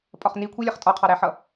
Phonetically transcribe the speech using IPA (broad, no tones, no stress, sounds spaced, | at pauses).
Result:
pʼ ɒ χ n i kʷʰ i lʲ ɜ χ tʼ ɒ qʰ ɑ ɾ æ ħ ʌ